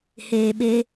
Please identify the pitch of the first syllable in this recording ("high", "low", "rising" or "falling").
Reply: low